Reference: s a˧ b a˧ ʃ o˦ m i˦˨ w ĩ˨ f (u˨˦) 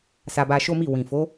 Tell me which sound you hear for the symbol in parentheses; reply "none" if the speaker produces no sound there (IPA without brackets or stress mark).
o˨˦